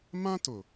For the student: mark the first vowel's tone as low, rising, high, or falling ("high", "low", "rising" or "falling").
high